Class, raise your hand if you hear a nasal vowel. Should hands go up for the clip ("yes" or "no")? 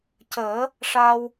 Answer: no